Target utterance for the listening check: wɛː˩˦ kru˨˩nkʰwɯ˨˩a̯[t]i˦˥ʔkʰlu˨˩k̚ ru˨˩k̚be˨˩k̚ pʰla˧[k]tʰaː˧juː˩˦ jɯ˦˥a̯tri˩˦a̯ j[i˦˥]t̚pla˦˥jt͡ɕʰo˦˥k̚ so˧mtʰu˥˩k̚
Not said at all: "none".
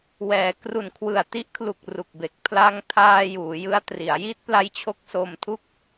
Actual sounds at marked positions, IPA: t, ŋ, i˦˥

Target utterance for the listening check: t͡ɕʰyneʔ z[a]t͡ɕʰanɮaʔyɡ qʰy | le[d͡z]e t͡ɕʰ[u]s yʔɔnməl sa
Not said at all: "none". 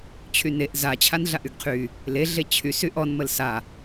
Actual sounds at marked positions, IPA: a, ɮ, y

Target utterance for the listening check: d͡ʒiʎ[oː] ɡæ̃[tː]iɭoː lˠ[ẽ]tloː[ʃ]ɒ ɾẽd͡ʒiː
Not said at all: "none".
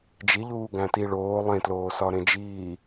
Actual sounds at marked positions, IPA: uː, t, ẽ, s

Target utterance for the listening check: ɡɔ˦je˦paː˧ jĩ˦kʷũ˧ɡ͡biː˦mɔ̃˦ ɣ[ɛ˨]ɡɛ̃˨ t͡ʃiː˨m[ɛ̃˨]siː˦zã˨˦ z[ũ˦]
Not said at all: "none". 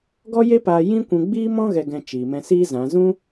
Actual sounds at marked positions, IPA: ɛ˨, ɛ̃˧, ũ˦

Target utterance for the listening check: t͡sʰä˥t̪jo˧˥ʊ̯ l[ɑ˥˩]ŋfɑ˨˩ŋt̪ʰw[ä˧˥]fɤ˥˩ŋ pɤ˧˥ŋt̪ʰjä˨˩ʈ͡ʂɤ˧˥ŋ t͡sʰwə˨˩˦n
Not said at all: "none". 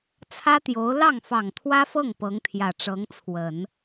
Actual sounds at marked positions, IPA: ɑ˥˩, ä˥

